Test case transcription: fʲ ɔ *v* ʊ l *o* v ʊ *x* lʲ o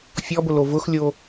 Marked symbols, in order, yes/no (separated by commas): no, yes, yes